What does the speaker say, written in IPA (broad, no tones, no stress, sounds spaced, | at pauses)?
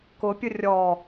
k ʊ pʲ ʊ rʲ ɔ